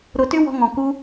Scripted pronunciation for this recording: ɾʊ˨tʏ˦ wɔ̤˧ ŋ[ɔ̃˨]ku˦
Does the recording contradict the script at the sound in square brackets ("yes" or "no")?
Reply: no